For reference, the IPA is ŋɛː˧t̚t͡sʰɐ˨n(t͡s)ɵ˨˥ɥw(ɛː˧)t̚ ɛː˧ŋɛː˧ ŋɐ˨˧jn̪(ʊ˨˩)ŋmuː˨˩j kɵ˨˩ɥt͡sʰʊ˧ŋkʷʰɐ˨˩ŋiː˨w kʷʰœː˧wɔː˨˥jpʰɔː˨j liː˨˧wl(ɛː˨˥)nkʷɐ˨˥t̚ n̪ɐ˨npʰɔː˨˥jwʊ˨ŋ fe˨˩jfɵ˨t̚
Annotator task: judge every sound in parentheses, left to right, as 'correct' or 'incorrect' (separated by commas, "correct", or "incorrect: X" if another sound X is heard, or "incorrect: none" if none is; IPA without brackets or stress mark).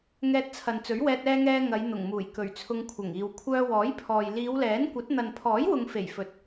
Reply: correct, correct, correct, correct